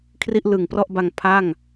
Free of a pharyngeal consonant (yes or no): yes